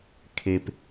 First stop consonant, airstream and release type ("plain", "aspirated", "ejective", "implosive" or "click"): aspirated